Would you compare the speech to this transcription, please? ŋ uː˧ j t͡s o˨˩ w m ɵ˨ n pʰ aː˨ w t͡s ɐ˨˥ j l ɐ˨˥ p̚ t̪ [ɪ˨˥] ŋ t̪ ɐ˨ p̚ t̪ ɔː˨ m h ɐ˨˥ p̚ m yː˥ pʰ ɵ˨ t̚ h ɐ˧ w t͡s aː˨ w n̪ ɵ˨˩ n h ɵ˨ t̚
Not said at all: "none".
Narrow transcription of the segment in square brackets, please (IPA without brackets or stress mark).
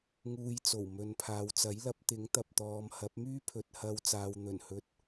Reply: ɪ˨˥